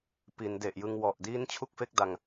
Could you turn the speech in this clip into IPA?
p i˩˦ n d e˨˩ ʔ j ɯ˧ ŋ w ɔ˨˩ ʔ d iː˦˥ n t͡ɕʰ u˥˩ k̚ f e˥˩ k̚ d a˧ ŋ

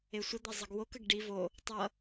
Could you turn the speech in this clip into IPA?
e sʷ ə d̪ ɛ zˤ ʌ ɡ w o k ə ɡ ɖ i v o | tˤ ʌ

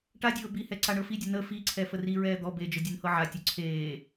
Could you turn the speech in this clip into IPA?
ʈ a dʲ ɤː b i h ɛ ǀ a ɳ ɤ f i dʲ ə n ə f i ǀʰ ɛ f ə r i ɹ ɛː d̪ ɔ b e d͡ʒ ə dʲ e n h ɤ ʕ a tʲ ɔ ǀʰ eː

